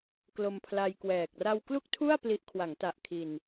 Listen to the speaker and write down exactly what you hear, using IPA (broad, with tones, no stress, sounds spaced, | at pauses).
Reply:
k l o˧ m pʰ l a˧ j k w ɛː˨˩ k̚ r a˧ w k l u˥˩ k̚ tʰ u˥˩ a̯ p l i˦˥ ʔ kʰ w a˩˦ ŋ t a˨˩ ʔ kʰ i˨˩ n